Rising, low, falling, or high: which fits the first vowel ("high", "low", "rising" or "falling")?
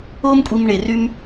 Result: high